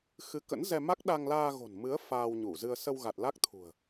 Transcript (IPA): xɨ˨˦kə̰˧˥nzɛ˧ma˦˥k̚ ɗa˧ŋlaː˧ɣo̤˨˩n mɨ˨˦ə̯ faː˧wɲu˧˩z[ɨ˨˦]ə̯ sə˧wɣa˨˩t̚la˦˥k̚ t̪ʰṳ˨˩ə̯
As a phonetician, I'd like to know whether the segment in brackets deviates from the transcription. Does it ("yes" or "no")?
yes